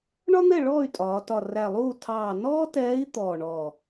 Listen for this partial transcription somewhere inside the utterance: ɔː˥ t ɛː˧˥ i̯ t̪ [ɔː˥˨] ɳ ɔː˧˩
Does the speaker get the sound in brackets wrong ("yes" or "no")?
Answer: yes